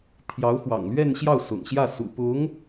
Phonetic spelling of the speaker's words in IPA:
t̪ʰ j ɑ˧˥ ʊ̯ x w ɑ̰˨˩ ŋ l ɥ ɛ˥˧ n ɕ j ɑ˥˩ ʊ̯ s ʊ̰˨˩ ŋ ɕ j ä˥˩ s ṵ˨˩ p ʊ˧˥ ŋ

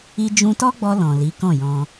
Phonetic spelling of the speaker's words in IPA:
i˧ d͡ʒ ũ˧ t ɔ˦ ɡ͡b ɔ˧ l ɔ̃˨ l i˨˦ k ɔ̃˦˨ j ɔ̃˧

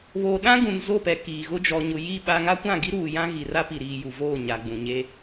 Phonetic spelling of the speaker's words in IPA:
β oː˨ ɗ ã˦ ɡ ũ˨ n z o˦˨ p ɛ˨ k iː˨ ɣ ʊ˦ d͡ʒ ɔ˨ ɲ ʊ˨ j i˦˨ ɓ a˦ ŋ a˦ kʷ ã˦˨ ɡ i˦ ɾ uː˨ j ã˦ ɣ i˨ r a˦ p i˨ ɾ iː˨ j u˨ v oː˦˨ ɲ a˨ ɡ͡b ũ˨ ɲ e˦

